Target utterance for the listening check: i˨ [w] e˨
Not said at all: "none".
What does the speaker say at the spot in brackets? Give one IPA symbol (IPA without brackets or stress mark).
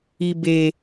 b